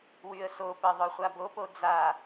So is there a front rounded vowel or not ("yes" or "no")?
yes